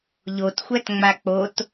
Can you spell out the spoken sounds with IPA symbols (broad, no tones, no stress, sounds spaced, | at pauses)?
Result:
ʎ o t xʷ æ t ŋ͡m a k͡p o t